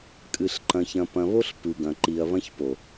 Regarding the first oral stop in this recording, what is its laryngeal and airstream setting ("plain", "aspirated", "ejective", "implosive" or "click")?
ejective